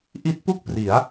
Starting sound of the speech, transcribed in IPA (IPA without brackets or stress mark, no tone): ʔ